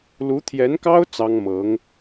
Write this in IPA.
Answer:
lu˧˥t̪ʰjɛ˧˥nkɑ˥ʊ̯ t͡sɑ˥ŋ mɤ˧˥ŋ

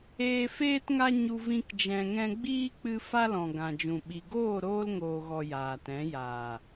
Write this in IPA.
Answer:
eː˧ feː˦tŋa˦ɲu˧ vĩ˦kd͡ʒɛ̃˧ŋɛ̃˦ ɡ͡biː˦k͡pɨ˧ fa˧lɔ̃˨ ɡã˨d͡ʒũ˨ ɓi˨ɡoː˦˨ ɾoː˧lŋoː˨ɣɔ˨ jaː˨tɛ̃˨˦ jaː˨

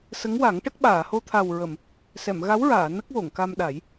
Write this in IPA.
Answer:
sə˧˥ŋwa˨˩˦ŋʈə˦˥k̚ ɓaː˨˩˨ho˧t̪ʰa˨˩wɹə˨˩˨m | sɛ˨˩˨mɣa˧˥wɹaː˨˩˨ nə˦˥k̚wo˨˩˨ŋka˧mɗa˨˩˦j

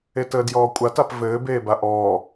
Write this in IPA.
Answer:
etəːdjɔːkʷʼat apvɘː beːbaʔɔː

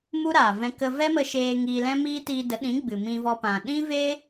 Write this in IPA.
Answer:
mu˦ɾaː˨vɛ̃˧ kə˧vɛ˦mə˧ʃeː˧ ŋiː˧lɛ̃˦miː˦ tiː˧də˨˦ɗĩ˨˦ ɡ͡bɨ˨mĩ˧vɔ˧pã˨ ɗĩ˦ve˦

